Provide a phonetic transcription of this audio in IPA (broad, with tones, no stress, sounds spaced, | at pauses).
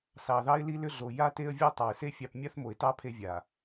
s ɑ˨ ð ɑ˦ ɪ̯ l i˦ l ʏ˦ ɮ o˨ j a˦ t e˦ ə̯ vʲ o˦ tˤ ɑ˨ ɪ̯ s e˦ fʲ ɑ˦ p mʲ a˦ θ m o˨ ɪ̯ t ɑ˦ pʰ e˦ vʲ a˨